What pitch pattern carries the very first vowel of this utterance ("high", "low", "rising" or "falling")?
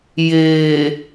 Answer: low